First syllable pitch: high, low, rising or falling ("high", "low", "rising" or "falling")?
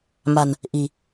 low